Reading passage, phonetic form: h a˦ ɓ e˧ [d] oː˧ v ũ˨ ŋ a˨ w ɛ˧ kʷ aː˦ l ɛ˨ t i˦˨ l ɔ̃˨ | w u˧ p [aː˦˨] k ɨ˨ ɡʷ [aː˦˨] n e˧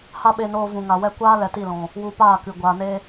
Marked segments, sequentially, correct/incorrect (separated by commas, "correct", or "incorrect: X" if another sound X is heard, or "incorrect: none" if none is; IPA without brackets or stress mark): incorrect: n, correct, incorrect: aː˨